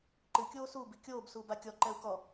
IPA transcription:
ǃɨ kʲoːsu bikʲoːb suːbakʲɔ ǃɛu̯kɔ

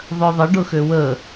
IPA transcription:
ðˤœðˤə ɖʊxøwə

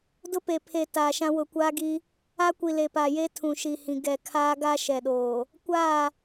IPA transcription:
dʊ˦pe˨ pʰe˨ taː˨ʃã˦ wʊ˨kʷaː˦ɡi˦ | a˦kʷi˨ le˨pa˨je˦ tʰũ˨ʃi˨hĩ˨ ɡɛ˨ kʰaː˦ɡa˦ ʃɛ˨ɗoː˨ | kʷaː˦˨

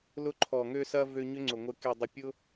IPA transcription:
lʊ˧ǃʰɔ˨ŋø˧sɐ˧ vø˧ɲʏ˦ŋ͡ǀʊ˨ ŋʷɪ˨ke˨dˤɪ˨pʲʊ˧

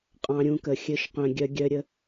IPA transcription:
qʼɑ̃˧ɾʲũ˧kə˨ xʲɘ˧ʃqœ̃˨ɡʲœ˧ɡʲœ˧ ɾʲə˧

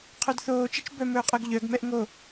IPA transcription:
qʰœdθoː t͡ʃit͡ʃbœ mɵːqʼœɡʎœɡ mɛʔŋo

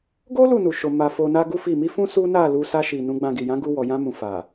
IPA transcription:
ɡo˦ lu˦˨nu˨ʃo˨ ma˨ fo˧na˦ɡu˦fi˦˨ mi˧ fũ˦ su˦na˦˨lu˧ sa˧ʃi˨ nũ˨˦ɡ͡bã˧ɡi˨ jã˨˦ɡu˧wɔ˨ jã˧mũ˨ fa˨

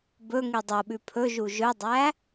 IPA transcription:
bɵ ŋidˤoɓʉ pʰɵʒu ʒɵdˤæ

